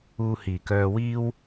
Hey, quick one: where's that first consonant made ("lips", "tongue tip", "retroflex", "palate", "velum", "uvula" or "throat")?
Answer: throat